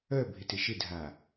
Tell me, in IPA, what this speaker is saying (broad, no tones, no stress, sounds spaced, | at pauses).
œ bʱ ɪ t ɪ ʃ ɪ dʱ a